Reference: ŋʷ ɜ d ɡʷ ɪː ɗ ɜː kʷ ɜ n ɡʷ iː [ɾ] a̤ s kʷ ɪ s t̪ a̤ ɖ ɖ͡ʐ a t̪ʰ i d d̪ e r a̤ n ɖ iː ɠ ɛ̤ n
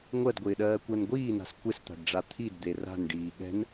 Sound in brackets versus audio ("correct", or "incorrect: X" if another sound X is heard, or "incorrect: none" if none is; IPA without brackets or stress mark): incorrect: n